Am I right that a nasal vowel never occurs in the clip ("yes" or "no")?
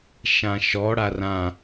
no